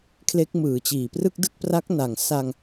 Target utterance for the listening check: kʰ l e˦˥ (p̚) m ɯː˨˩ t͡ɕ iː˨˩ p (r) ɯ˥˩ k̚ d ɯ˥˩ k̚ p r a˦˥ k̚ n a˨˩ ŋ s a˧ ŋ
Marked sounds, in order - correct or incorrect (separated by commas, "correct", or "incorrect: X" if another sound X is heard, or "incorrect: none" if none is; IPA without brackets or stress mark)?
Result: incorrect: k̚, correct